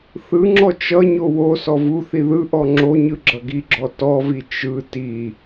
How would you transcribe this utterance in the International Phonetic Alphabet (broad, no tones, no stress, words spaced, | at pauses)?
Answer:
θɯŋ͡ǁɔ t͡ʃʌɲo wo sɔvuθi ðɯʔɔ ŋ͡ǁoɲɯ ɡ͡ǁʌɡiɡ͡ǁɔ tɔvi t͡ʃɯ ti